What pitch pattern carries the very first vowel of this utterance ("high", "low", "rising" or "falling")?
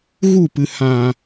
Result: falling